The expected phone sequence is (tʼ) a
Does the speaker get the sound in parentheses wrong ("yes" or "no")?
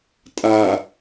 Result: no